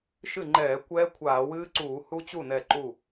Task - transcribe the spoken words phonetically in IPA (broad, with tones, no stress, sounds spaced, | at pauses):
ʃ ɨ˥˩ ŋ͡ǃ ɛː˧˩˧ kʷ ɛː˦˥ kʷʰ aː˧˩˧ w ɨː˦˥ ǀ uː˧˩˧ h u˦˥ t͡ɕ u˥˩ n ɛ˧˩ ǃ u˧˩